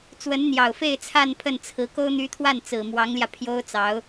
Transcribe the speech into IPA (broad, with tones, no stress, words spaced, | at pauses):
t͡swə˧˥nn̪jɑ˨˩ʊ̯fe˥˧ɪ̯ t͡sʰa˥˧n pʰə˥˩nt͡sʰɹ̩˧˥ ko˥ʊ̯n̪y˧˥t̪ʰwa˥˩n t͡sɹ̩˨˩mwɑ˧˥ŋljä˧pʰjo˥ʊ̯ t͡sɑ˧˥ʊ̯